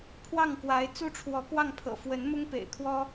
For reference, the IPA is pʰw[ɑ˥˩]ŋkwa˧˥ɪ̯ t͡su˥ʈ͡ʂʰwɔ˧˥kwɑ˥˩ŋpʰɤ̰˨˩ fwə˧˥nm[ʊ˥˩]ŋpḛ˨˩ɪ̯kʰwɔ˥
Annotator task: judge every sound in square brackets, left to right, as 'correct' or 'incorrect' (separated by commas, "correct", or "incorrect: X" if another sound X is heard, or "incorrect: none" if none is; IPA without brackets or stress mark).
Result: correct, incorrect: ʊ˥